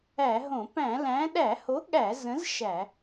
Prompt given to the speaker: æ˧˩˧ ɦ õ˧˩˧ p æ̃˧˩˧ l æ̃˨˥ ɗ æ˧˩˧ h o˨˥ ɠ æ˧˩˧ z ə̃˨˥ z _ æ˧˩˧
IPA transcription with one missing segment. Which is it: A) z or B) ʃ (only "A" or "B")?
B